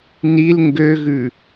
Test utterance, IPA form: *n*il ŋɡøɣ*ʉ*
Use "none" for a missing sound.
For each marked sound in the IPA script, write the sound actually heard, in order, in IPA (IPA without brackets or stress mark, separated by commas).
n, ʉ